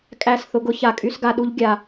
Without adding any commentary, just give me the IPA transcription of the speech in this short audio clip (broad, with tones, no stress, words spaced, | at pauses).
kʼæ˦˨sθʊ˧ɡʊ˦ ça˨kʼy˦sɡa˧ɗu˦ʎ ɡʲa˧